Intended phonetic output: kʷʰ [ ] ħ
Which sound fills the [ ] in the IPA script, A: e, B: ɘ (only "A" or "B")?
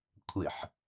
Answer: B